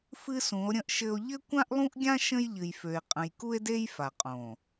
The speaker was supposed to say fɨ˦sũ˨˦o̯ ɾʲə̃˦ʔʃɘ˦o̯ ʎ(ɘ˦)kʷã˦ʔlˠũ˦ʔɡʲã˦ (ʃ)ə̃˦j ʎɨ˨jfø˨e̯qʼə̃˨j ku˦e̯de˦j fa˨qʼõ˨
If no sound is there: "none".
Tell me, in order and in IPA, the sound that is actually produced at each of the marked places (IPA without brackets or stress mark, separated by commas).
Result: ɘ˦, ʃ